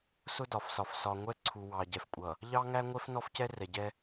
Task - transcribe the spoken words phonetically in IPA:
s ʊ˦ d ɒ˨ f s ɒ˨ f s ɒ˨ ŋʷ ɛ˦ ǀʰ u˨ w ɑ˨ ɟ ɛ˨ f kʷʼ ʌ˨ | ʎ ɑ˦ ŋ æ˦ ŋʷ ɛ˦ f n ɔ˦ f c ɛ˦ r ɛ˨ ɟ ɛ˦

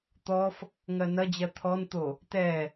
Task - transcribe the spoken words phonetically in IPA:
t̪ ɔ f | ŋ ɜ n ɐ d͡ʑ ɜ t̪ʰ ɔ n t̪ o | t ɛ

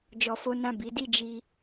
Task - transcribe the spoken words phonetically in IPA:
d͡ʒ ɔ˧ f o˦ n ã˦˨ b i˨˦ d i˦˨ d͡ʒ i˧

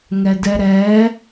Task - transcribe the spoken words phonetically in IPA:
ŋ ɛ d ɛ ɾ ɛː

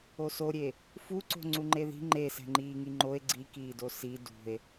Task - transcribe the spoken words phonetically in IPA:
o s o ɾʲ e | f u ǀ o̤ ŋ͡ǀ u ŋ͡ǃ e ð i̤ ŋ͡ǃ e s ɛ̤ ŋ͡ǃ iː ŋ i ŋ͡ǃ o e̯ ɡ͡ǀ i k iː d o s i d ṳ e̯

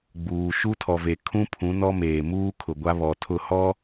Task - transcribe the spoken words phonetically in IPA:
ɡ͡b uː˨ ʃ u˦ tʰ ɔ˨ v e˨ kʰ ũ˦ pʰ ũ˨˦ n ɔ˦ m eː˨ m uː˦ kʰ ʊ˨ ɡʷ a˦ β ɔ˨ tʰ ʊ˦˨ h ɔ˦

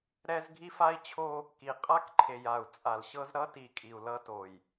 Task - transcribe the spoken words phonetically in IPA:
ɾ ɛ˦ z ɡʱ i˦ f a˦ i̯ t͡ɕʰ o˦ | k i˨ qʼ a˦ k ǃʰ e˨ j a˨ u̯ t͡sʼ a˨ l ɕ ɤ˦ z ɾ ʌ˦ t i˨ kʼ i˨ u̯ l ʌ˦ t o˨ j

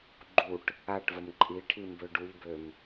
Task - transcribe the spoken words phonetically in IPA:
ɡ͡ǃ u ʈ | a ʈ v ə m ǃʼ i ʈʰ i m b ø ɖ u ʎ b ø m

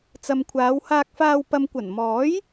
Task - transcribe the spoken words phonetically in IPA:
t͡s ɐ˨ m kʷʰ aː˨˧ w h aː˧ k̚ f aː˧ w p ɐ˨ m kʷ ɐ˨˩ n m ɔː˨˥ j

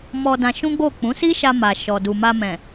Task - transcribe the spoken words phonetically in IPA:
m ɔ˧ d ã˧ ʃ ũ˦ ɡ͡b o˦˨ k͡p ũ˨˦ s i˦ ʃ a˧ m a˨ ʃ ɔ˨ d u˨ m a˧ m ɛ̃˨

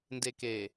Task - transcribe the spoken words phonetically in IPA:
n d e k e

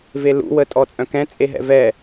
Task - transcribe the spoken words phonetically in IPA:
v e l ṵ w ə tʼ ɔ t͡sʼ œ̃ k ɛ̃ t͡sʼ e ɦ ɛ̰ v ɛ

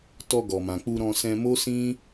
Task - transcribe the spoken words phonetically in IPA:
t ɔ˧ ɡ ɔ˨ m ã˨ k͡p u˧ ɾ ɔ̃˧ s ɛ̃˧ m o˦ s ĩ˦

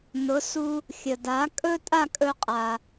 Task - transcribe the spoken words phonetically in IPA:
n ʊ˩˥ s u˧ | xʲ ə˩ d a˩˥ kʼ ɵ˥ tʼ a˥˩ kʼ ɵ˧ qʼ a˩

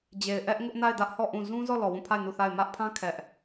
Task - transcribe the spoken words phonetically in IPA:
d͡ʑ e˨ ɪ̯ ʔ ɛ˦ ʔ ŋ ʊ˦ ʔ n a˦˨ ɪ̯ d ä˦ ʔ h ɔ˦˨ ʔ ũ˦˨ z ũ˦ z ɔ˦˨ l ɔ˨ w ũ˦˨ pʰ a˦˨ ɪ̯ n u˦˨ θ a˦˨ ɪ̯ m ä˦ ʔ pʰ ã˦ kʰ ɛ˦ ʔ

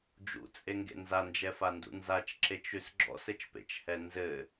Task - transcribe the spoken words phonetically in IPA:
d͡ʒ ṵ t͡sʼ e ŋ ɡ ḛ n z a n d͡ʒ ɛ f a n d ṵ n z a t͡ʃ ǁ e t͡ʃ ʉ s ɡ͡ǁ ɔ̰ s ɘ t͡ʃ p ḛ t͡ʃ h ɛ n z ɘ

